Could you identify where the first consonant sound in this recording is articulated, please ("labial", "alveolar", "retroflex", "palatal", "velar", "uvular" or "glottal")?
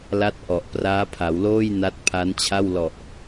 alveolar